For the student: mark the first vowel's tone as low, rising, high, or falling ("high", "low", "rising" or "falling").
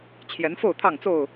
rising